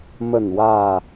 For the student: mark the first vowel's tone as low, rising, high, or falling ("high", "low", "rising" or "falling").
falling